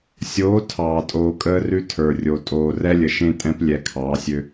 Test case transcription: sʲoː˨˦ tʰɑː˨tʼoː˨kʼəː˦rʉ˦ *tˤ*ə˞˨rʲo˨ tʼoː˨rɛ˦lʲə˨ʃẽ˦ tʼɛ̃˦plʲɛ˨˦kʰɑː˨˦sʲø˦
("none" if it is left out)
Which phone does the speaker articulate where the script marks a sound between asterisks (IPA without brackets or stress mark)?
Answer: tʰ